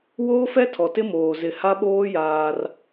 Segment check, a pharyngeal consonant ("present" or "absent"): absent